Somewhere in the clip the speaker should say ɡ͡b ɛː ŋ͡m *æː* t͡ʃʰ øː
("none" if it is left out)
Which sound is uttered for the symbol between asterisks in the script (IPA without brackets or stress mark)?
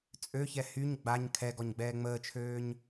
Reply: əː